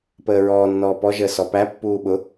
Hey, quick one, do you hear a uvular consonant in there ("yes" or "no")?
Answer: no